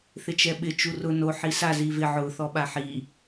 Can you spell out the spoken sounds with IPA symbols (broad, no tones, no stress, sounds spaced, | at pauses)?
θ ɪ t͡ʃ ɛ ɓ ɪ t͡ʃ u r ʊ n o ħ i s a z i v ɪ ʕ ʊ θ ɔ ɓ a ħ i